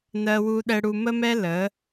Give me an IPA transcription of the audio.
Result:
n ɜ˧ w u˧ ɗ ɛ˧ ɽ u˧ m ə˥ m ɛ˥ l ə˩˥

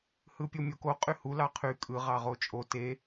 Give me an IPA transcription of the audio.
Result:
h ɯ pʲ o mʲ o k o qʼ y h u l ɑ qʰ y kʼ ɯ ʁ ɑ ʁ o t͡ʃʼ o t e

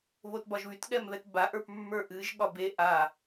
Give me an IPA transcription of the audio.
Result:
β o t b ɒ ʒ β y t ɠ ɛ m β ɛ t b a ʔ ə˞ p mː ə˞ ʔ ɨ ʒ ɠ ɒ b e ʔ a

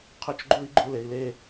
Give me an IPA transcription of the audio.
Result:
qʰ ɵ˦ t͡ʃ ɡ͡ǃ u˦ i̯ ɡ͡ǃ u˧ l e˨ i̯ l e˦˨

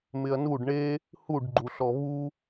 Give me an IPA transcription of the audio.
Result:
m ɪ ɐ̯ n u ɖ ɳ e | h u ɖ ɡ͡ǃ u ɬ ɔ β u

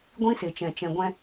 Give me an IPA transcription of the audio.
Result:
ɡʷ ĩ˦ s e˨ t͡ʃ ɛ̃˨ t͡ʃ ɛ̃˨ ɡʷ ɛ̃˧

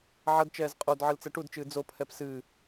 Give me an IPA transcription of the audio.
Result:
ʕ ɐ d t͡ʃ ɛː z qʼ o d ʕ ɨ l t͡s ɛ ʈ u d t͡ʃ ɨː d͡z o pʰ ɛ p s ɨː

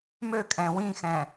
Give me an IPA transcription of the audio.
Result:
m ø kʼ ɛ̃ w ĩ x ɛ̃

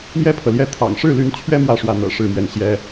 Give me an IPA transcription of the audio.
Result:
m j ɛ˥ pʰ ɤ˨ l j ɛ˥˩ t̪ʰ ɑ̰˨˩ ŋ ʂ ɻ̩˥˩ l y˧˥ n t͡ɕʰ ɥ ɛ˥ m w ä˥˧ ʂ w ä˥˩ n̪ ɤ̰˨˩ ʂ ɻ̩˥˧ m ɥ ɛ˥˩ n ɕ j ɛ˥

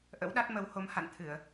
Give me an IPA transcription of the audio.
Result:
ʔ ə̰˧˥ w ɗ a˦˥ t̚ m ə˨˦ w h o˨˦ m h a̰˧˨ n t̪ʰ ɨ˧˩˨ ə̯

